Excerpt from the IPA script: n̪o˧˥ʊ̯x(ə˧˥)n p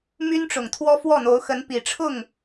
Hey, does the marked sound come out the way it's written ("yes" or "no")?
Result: yes